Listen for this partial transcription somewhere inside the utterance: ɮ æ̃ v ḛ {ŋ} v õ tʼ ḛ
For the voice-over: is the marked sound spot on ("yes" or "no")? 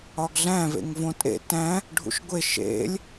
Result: yes